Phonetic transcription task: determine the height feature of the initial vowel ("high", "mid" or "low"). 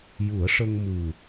high